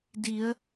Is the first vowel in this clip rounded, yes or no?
no